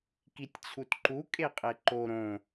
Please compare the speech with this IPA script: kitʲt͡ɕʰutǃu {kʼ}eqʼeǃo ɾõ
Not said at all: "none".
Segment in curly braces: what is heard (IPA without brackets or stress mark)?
kʼ